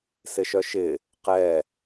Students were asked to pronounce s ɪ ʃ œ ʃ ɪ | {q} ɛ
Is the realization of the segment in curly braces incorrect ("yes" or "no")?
no